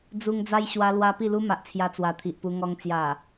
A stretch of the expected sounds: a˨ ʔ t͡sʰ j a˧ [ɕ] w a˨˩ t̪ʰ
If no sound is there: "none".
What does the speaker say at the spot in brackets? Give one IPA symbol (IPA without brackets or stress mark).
t͡s